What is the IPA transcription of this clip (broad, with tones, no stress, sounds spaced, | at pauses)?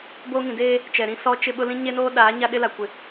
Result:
b o˦ ŋ ĩ˨ d eː˦ | t͡ʃ ɛ˨ ɾ ĩ˦ s ɔ˦ t͡ʃ ɪ˦ ɓ ʊ˦ l ĩ˦ ɲ e˦ n oː˦ ɗ aː˨˦ ɲ a˦ ɗ ɪ˦ l a˨ kʷ ɪ˨